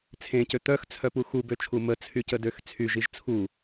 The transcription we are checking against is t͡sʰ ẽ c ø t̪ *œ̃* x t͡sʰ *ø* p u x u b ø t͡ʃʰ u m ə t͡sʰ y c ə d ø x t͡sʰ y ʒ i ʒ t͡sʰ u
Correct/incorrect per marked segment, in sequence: incorrect, incorrect

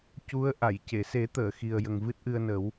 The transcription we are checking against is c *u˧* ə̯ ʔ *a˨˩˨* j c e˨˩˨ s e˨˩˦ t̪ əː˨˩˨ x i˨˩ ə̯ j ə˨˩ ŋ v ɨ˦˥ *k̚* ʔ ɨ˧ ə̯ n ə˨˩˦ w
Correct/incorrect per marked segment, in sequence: incorrect, correct, incorrect

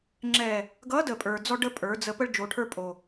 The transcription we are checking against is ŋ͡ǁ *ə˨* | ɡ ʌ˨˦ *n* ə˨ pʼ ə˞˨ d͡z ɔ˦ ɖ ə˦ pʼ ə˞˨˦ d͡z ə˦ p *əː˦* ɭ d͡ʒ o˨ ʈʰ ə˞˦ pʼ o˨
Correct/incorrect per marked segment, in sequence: incorrect, incorrect, incorrect

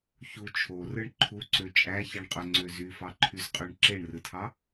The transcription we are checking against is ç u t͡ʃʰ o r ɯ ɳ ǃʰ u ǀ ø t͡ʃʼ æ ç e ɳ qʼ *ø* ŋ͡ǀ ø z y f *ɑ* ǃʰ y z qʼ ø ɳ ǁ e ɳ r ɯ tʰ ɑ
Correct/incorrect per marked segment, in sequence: correct, correct

